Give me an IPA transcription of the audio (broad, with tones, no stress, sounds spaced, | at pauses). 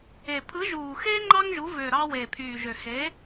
e˨˩ pʰ ɯ˨˥ ʒ uː˨˩ x eː˥ ŋ͡ǃ ɑ˥ ŋ ʒ u˨˥ v ø˨˩ ɾ ɑ˥ w eː˨˩ pʰ yː˨˩ ʒ ø˨˩ h e˨˥